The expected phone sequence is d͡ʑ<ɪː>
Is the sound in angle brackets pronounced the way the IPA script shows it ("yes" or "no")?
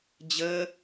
no